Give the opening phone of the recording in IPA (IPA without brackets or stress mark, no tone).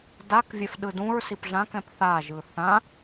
d